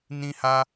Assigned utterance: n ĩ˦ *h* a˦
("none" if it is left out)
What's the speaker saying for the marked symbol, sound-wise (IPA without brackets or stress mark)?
h